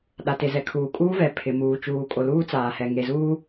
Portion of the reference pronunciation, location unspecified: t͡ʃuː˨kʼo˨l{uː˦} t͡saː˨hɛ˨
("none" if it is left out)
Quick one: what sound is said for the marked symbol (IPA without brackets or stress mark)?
uː˦